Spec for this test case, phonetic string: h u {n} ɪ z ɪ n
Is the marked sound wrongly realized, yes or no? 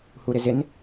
yes